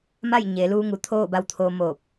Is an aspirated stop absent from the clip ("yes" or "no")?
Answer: no